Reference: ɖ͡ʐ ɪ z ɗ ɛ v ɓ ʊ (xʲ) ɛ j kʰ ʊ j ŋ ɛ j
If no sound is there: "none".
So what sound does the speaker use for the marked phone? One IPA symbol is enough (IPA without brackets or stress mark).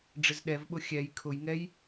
xʲ